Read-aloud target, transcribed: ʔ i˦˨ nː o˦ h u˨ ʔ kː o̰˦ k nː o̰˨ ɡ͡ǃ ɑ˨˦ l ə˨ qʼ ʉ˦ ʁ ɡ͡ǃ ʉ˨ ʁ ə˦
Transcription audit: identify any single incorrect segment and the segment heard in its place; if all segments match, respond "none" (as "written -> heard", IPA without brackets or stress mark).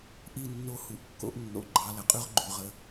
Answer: k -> ʔ